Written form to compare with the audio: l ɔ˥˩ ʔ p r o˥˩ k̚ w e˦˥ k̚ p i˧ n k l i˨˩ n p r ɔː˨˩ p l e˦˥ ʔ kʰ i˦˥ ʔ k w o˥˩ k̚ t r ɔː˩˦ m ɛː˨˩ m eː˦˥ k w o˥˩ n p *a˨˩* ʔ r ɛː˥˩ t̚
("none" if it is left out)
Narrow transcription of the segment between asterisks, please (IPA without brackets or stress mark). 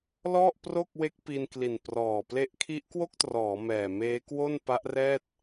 a˦˥